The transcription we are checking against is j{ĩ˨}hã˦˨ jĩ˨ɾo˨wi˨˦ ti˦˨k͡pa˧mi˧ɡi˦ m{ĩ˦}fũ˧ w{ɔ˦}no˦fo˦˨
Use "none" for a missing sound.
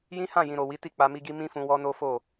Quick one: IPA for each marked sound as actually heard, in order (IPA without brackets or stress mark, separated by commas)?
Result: ĩ˦, ĩ˦, ɔ˦